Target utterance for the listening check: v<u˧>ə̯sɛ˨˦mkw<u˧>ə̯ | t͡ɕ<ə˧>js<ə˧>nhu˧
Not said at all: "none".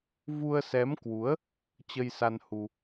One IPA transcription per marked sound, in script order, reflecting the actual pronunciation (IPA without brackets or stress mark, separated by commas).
u˧, u˨˦, ə˧, a˧